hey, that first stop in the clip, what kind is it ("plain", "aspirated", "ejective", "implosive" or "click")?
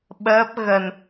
implosive